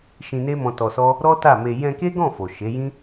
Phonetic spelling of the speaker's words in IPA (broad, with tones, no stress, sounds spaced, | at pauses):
ʃ ĩ˧ n e˦ m ɔ̃˧ t ɔ˧ s ɔ˦ | ɾ ɔ˦ t a˦˨ m e˧ j ɛ̃˧ k e˦ ɡ ɔ̃˦˨ f o˨ ʃ e˨˦ j ĩ˦